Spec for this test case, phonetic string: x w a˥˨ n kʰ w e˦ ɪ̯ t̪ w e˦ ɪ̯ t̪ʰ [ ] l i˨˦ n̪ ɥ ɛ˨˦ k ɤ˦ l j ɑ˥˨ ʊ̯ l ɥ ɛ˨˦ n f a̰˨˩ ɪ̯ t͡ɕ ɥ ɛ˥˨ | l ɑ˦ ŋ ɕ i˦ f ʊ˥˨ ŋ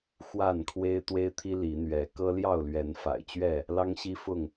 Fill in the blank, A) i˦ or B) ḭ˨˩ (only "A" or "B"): A